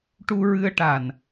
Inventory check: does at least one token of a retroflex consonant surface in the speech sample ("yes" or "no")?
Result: yes